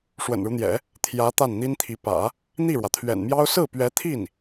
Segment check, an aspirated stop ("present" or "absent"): present